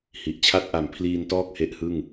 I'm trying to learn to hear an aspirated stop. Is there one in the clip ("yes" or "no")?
yes